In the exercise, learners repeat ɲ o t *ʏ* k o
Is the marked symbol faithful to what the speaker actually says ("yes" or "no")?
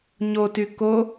no